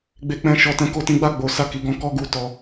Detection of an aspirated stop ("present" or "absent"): absent